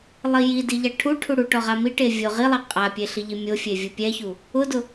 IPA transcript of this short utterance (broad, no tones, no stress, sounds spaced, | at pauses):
lˠ i j i d i ʎ a ʈʰ u ʈʰ u ɽ u ʈ ɔ ʁ a m i ʈ e vʲ o ʁ i lˠ a qʼ a pʲ e ɬ i ʎ i mʲ o fʲ e vʲ u pʲ ɛ ç u | ʊ d ʊ